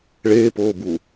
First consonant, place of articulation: retroflex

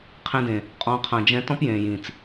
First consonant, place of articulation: uvular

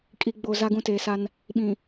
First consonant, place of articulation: velar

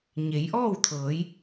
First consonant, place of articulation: palatal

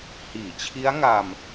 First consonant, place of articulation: glottal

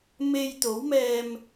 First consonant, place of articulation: labial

